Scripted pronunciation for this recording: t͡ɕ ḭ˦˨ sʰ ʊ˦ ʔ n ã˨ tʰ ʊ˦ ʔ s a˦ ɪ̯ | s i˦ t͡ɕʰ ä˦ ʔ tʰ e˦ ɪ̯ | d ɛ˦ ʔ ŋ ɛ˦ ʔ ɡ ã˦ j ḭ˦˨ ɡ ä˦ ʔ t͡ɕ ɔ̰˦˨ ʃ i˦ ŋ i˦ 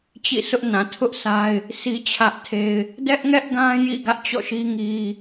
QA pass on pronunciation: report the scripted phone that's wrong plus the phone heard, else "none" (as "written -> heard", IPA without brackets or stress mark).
none